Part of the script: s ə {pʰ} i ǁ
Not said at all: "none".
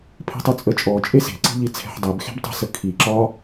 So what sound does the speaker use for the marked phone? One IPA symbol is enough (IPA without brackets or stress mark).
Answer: kʰ